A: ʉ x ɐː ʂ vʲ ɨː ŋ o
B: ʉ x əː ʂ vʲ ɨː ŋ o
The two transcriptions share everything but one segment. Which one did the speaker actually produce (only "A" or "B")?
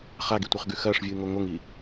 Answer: A